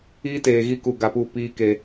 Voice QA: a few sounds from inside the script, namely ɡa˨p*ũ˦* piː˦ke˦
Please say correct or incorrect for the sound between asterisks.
incorrect